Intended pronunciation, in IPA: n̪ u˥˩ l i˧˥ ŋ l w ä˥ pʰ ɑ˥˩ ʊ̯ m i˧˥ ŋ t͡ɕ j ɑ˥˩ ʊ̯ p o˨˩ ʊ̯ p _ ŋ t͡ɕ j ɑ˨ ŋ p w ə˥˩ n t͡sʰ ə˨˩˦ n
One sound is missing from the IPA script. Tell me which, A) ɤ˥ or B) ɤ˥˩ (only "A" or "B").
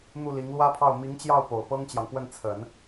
A